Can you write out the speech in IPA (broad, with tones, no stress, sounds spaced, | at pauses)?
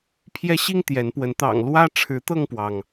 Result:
pʰ j ɛ˦ ɕ i˦ ŋ t̪ j ɛ˨˦ n p w ə˨˦ n t̪ ɑ̰˨˩ ŋ l w ä˦ ʈ͡ʂʰ ɻ̩˨˦ t̪ ɤ˥˨ ŋ p w ɑ˩ ŋ